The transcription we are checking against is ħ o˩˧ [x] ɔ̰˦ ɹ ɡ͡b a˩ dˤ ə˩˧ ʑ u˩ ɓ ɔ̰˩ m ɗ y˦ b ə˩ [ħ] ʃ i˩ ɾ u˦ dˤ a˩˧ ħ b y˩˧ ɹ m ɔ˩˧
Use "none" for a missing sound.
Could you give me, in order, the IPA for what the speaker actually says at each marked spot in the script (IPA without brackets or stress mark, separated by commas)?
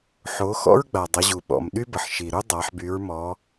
x, ħ